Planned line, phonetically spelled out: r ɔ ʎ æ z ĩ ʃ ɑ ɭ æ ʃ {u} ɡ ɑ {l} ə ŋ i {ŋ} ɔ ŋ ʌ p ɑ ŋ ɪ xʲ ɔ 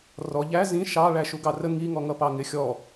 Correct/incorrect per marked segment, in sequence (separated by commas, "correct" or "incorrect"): correct, incorrect, correct